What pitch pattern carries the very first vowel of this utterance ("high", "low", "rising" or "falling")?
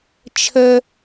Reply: high